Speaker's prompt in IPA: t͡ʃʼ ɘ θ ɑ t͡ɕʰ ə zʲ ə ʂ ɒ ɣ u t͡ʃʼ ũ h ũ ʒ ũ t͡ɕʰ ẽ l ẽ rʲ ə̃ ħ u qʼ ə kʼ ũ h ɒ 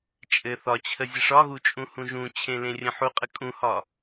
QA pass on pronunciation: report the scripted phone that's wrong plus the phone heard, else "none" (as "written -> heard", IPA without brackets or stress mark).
ɑ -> ɒ